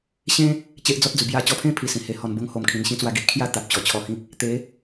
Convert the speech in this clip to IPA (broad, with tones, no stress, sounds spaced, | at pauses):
ɕ ẽ˦ | t͡ɕ e˦ ʔ d͡z ɔ˦ t̚ d͡z u˨˩ b j a˧ t͡ɕ ɔ˧ pʰ ẽ˥˧ pʰ i˨˩ s ĩ˨˩ h e˧ h ɔ˧ n b o˦ ŋ h o˨˩ m kʰ ĩ˨˩ n ɕ ĩ˦ t͡s w a˧ ɡ i˦ ʔ kʰ j a˥˧ t̪ a˨ p̚ t͡ɕ ɔ˨˩ t͡ɕʰ ɔ˧ h ĩ˦ k̚ | t̪ e˨˦